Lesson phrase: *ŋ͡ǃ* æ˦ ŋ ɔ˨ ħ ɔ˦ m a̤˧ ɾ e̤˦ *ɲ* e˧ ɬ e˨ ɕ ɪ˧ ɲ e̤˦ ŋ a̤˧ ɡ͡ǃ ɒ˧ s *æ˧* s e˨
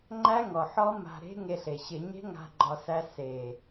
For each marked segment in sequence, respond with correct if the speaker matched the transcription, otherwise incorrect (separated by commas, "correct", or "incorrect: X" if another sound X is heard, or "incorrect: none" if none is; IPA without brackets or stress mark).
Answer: correct, incorrect: ŋ, correct